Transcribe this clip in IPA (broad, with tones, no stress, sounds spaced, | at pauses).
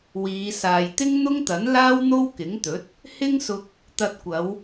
w iː˨˧ s aː˨ j t̪ ɪ˥ ŋ n̪ ʊ˥ ŋ t̪ ɐ˨˥ n l aː˥ w n̪ o˥ w k ɪ˨˥ ŋ t̪ ɵ˨˥ t̚ | h ɪ˥ ŋ s ʊ˧ k̚ | t̪ ɐ˧ t̚ kʷ ɐ˨˧ w